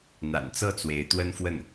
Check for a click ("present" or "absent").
absent